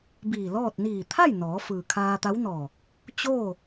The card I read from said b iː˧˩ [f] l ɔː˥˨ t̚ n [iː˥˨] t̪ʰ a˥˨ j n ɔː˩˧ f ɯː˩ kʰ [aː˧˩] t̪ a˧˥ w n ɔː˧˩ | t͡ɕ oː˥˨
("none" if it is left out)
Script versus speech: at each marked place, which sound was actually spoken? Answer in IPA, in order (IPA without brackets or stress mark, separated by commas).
none, iː˧˩, aː˧